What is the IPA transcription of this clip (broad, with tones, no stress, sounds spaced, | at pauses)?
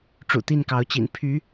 ʈ͡ʂ ṵ˨˩ t̪ i˥˨ n k ɑ˨˦ ʊ̯ t͡ɕ ḭ˨˩ n pʰ y˨˦